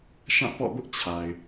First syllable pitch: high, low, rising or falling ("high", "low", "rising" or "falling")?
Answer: falling